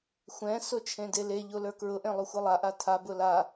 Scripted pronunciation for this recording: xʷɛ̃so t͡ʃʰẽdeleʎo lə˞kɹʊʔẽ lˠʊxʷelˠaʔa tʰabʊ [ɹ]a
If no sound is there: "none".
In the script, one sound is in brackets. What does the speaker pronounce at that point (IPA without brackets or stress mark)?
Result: l